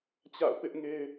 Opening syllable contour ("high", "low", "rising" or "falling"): falling